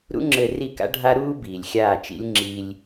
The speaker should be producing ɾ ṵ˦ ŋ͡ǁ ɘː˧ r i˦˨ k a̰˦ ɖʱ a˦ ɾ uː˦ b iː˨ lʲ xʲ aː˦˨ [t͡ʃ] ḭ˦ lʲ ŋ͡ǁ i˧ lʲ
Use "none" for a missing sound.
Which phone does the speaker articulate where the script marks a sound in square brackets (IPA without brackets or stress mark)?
t͡ʃ